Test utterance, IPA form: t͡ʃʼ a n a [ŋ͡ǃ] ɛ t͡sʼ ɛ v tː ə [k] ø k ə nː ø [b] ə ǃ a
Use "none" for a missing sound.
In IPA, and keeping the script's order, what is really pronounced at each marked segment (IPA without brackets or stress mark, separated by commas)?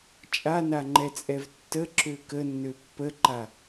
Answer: ŋ͡ǃ, ǁ, pː